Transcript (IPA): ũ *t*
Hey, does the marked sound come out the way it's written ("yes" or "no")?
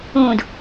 no